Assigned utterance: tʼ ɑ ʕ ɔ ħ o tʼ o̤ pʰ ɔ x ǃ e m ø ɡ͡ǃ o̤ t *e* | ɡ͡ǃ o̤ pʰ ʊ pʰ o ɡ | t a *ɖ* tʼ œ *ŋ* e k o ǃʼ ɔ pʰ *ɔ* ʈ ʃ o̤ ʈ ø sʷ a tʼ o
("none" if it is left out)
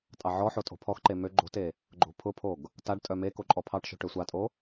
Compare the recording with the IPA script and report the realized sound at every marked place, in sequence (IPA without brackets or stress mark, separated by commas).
e, ɖ, m, ɑ